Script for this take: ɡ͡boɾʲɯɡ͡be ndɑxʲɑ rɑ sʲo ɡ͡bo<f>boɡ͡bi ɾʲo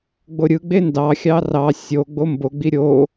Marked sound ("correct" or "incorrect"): incorrect